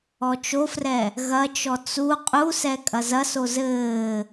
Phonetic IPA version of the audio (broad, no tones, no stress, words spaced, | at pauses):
ɔt͡ʃofrɛ | ɣɐt͡ʃɔ t͡su qʼusɛ kʼɐzɐso zɘː